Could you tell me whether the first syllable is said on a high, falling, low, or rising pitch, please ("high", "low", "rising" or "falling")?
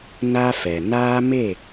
high